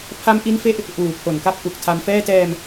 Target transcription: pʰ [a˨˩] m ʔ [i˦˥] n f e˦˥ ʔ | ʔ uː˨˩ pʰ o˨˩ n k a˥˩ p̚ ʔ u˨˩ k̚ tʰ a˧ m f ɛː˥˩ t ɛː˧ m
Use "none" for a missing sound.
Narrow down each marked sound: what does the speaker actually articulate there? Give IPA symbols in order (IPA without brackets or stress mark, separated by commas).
a˦˥, i˦˥